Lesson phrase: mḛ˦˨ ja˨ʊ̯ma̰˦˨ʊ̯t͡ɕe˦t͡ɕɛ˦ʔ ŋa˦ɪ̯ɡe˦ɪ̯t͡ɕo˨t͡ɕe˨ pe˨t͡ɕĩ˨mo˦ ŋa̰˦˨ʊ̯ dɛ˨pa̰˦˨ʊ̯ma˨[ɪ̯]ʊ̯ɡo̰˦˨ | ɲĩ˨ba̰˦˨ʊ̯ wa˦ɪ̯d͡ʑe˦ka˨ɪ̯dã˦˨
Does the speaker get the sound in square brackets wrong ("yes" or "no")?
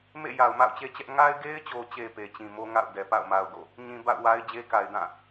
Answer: yes